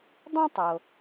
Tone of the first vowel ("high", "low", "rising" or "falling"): high